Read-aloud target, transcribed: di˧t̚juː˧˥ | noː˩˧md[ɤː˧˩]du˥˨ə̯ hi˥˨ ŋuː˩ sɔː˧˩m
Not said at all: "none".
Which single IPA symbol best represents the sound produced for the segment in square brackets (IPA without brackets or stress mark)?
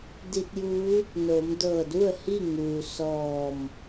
ɤː˧˩